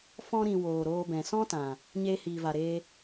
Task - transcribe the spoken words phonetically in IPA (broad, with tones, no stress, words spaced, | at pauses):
fɔ̃˧ ɾĩ˨ woː˨ɾoː˧bɛ̃˨ sɔ̃˦tã˨ | ɲeː˧hiː˨va˨ɾeː˧